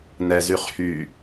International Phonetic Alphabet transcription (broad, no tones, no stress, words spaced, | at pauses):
nɛzyχ hy